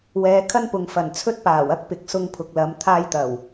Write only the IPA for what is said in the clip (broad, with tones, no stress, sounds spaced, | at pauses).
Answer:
w ɛː˨˧ kʰ ɐ˥ n p ʊ˨ ŋ f ɐ˨˩ n t͡sʰ ɵ˥ t̚ p aː˨˩ w ɐ˥ k̚ p ɪ˨˥ k̚ s ʊ˧ ŋ pʰ ʊ˨ k̚ l ɐ˨˧ m t̪ʰ aː˧ j t̪ ɐ˨˩ w